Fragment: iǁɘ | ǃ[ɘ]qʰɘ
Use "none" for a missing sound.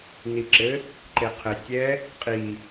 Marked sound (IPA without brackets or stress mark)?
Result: e